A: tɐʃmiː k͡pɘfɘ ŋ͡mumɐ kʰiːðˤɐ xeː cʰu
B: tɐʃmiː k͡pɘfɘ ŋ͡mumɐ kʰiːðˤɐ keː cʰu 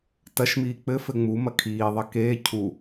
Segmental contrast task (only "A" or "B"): B